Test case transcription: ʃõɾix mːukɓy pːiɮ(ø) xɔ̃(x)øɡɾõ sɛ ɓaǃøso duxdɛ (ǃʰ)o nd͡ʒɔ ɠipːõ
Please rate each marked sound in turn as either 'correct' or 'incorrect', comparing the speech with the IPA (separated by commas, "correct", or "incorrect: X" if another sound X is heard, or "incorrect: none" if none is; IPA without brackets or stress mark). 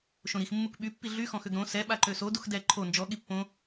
incorrect: y, correct, correct